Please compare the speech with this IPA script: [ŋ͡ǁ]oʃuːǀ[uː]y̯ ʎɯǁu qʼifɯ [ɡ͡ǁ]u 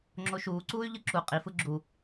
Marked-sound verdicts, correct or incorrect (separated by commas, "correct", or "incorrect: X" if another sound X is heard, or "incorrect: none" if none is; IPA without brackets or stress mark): correct, correct, correct